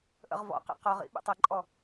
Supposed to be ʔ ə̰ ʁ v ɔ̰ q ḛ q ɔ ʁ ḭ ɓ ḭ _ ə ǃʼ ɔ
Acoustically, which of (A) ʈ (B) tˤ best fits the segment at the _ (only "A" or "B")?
B